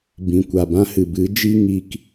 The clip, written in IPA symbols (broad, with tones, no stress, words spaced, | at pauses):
bĩ˨kʷa˨bã˦hɨ˨ bɨ˨˦d͡ʒi˦ ŋi˧k